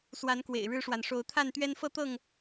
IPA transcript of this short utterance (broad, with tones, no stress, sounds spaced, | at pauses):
s w a˨˦ n k w ḛ˨˩ ɪ̯ ɻ ɻ̩˦ ʂ w a˨ n ʂ o˨˦ ʊ̯ t̪ʰ a˥˨ n t̪ ɥ ɛ˦ n f ɤ˦ t̪ ɤ˥˨ ŋ